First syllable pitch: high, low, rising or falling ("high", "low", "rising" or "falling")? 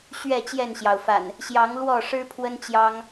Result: falling